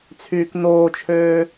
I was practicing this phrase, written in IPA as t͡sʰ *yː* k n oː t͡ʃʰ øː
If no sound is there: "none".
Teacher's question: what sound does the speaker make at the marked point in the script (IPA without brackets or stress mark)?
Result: yː